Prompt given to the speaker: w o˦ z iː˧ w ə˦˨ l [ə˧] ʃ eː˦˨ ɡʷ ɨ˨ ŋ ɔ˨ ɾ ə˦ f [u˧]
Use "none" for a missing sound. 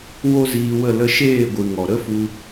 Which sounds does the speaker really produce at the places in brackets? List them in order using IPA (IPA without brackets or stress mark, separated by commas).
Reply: ə˧, u˧